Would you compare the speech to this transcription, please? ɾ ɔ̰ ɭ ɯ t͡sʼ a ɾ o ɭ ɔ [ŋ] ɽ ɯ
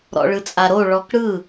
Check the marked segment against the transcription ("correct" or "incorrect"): incorrect